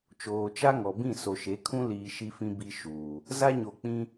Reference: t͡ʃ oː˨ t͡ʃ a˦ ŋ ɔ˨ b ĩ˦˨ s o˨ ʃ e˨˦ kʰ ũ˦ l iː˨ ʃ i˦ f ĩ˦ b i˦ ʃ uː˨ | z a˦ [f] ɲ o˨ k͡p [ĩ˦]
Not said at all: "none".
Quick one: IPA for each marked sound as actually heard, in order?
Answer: none, ĩ˦

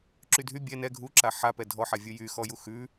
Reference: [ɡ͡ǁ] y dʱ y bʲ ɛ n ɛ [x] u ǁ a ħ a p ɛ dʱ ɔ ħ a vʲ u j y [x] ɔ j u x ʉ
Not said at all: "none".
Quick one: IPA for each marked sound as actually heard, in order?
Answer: ǁ, ɡʱ, x

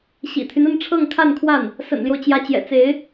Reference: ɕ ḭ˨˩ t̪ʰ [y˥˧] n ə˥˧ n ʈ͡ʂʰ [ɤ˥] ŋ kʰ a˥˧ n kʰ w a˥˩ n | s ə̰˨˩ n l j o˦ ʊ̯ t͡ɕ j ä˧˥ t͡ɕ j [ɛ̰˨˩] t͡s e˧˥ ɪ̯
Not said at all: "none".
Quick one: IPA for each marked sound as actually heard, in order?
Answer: y˦, ɤ˥˧, ɛ̰˨˩

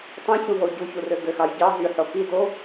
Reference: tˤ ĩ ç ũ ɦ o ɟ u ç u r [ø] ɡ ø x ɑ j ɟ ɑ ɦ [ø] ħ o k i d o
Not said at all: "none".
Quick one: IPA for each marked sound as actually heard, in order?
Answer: ø, y

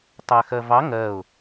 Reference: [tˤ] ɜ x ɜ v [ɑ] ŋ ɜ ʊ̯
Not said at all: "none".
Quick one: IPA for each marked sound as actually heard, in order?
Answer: tˤ, ɑ

